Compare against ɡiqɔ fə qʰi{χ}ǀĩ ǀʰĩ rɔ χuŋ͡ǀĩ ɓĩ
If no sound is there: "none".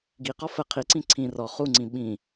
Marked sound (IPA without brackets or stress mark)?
none